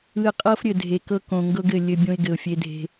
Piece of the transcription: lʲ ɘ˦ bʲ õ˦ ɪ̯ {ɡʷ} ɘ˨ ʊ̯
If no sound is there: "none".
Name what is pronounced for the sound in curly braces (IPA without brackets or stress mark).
ɡ